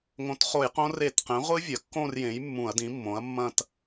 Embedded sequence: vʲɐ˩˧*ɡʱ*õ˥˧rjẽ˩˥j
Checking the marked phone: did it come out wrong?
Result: yes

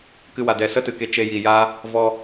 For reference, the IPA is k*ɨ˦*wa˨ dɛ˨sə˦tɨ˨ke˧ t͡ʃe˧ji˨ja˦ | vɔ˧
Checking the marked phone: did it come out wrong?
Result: yes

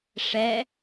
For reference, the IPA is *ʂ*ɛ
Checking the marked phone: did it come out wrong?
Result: no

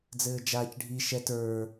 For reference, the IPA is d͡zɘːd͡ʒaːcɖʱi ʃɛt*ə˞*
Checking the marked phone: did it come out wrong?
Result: no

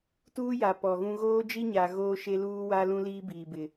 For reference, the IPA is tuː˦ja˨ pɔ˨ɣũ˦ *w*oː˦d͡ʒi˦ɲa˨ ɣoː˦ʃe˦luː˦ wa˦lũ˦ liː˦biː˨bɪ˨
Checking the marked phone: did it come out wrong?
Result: yes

